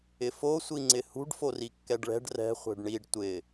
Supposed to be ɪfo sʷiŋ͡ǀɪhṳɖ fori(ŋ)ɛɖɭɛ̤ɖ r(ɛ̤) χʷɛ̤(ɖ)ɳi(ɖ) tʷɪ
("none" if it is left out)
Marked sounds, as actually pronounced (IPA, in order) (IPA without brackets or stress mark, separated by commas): kː, ɛ̤, ɖ, ɖ